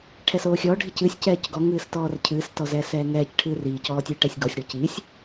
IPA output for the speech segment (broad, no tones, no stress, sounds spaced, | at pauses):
ʈʰ ɛ s oː xʲ ɔ ɖʱ i c ɨ sʲ c ɛː c ɡ ɔ ŋ ɨː s t ɔː r cʰ ɨː s t ɔ z ɛː s ɛː ŋ ɛː c ʈʰ ɨː r iː c ɔː tʲ ɨː ʈ ɛ sʲ ɡ ɔ sʲ ɽ o c iː sʲ